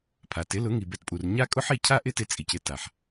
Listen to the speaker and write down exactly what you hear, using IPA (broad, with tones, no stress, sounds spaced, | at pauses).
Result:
pʰ a˨ t ɪ˨˦ l ʊ˨˦ ŋ i˨ b ɛ˧ t pʼ u˨ r ɲ a˦ kʼ ʊ˦ ħ i˦˨ cʰ a˦ ʔ ɪ˦ t ɪ˧ t͡sʼ i˨ c ɪ˧ t a˨ ħ